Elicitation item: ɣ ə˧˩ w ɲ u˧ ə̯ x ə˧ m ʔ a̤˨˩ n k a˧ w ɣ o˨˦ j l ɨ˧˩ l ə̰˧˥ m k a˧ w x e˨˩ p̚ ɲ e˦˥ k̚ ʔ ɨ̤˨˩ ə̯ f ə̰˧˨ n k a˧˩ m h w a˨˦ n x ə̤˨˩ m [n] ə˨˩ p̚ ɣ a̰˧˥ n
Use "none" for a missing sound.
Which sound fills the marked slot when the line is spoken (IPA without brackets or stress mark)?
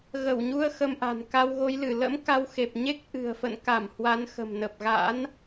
n